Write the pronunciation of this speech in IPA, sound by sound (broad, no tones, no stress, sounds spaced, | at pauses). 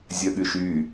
zʲ œ ɠ y ʃ y